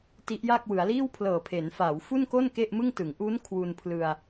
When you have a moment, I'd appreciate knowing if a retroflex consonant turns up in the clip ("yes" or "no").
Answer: no